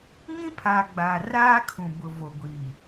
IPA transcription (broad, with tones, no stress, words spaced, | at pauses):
ŋĩ˦pʰa˨ ɡ͡ba˨ raː˦kʰũ˨bʊ˨ vo˨ ɡʷi˨